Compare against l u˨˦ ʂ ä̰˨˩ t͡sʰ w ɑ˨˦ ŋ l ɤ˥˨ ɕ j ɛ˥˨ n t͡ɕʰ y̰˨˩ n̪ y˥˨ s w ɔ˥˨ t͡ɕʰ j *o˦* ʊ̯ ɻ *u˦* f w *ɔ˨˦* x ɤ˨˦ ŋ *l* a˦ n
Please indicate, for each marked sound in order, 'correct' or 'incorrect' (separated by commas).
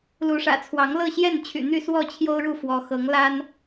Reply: correct, incorrect, correct, correct